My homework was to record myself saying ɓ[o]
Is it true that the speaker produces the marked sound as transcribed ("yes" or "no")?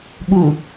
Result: no